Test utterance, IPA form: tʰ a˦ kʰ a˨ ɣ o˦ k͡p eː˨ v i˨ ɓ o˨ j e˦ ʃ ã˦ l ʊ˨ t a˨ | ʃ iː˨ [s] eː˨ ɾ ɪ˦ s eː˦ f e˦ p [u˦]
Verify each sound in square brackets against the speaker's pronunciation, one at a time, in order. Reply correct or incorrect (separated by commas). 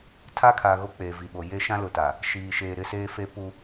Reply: incorrect, correct